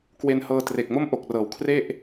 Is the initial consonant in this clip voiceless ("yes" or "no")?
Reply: yes